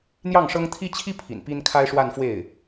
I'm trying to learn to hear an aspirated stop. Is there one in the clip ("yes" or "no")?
yes